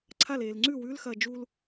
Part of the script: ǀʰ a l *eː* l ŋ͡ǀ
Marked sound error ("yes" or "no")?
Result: no